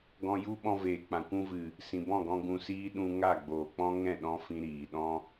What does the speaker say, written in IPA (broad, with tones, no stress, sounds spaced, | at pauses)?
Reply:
ɡ ɔ̃˧ j u˦ ɓ ɔ̃˧ v eː˨ k͡p ã˨ kʷ ũ˧ v ɨ˨ | s ĩ˨ b ɔ̃˦˨ ɡ ɔ̃˧ ɡ ũ˧ s iː˦ ɗ ũ˧ ŋ a˦˨ ɡ͡b oː˨ k͡p ɔ̃˦ ŋ ɛ̃˦˨ ɗ ɔ̃˧ f ĩ˦ ɾ iː˨ ɗ ɔ̃˦